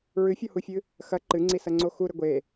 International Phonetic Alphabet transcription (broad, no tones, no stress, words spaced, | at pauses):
ɹɨfʲɔhufʲɨ | xɐ ǃɨŋ͡ǀisɐŋ͡ǀo xuɾɘ ɡʷe